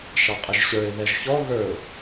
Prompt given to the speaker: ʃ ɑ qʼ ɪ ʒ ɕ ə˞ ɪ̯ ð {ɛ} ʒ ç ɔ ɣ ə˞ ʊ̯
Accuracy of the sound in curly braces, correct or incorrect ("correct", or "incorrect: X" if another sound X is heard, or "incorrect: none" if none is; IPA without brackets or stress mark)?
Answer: correct